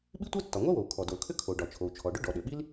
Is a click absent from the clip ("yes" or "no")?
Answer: yes